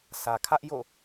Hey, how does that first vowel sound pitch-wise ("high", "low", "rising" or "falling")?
low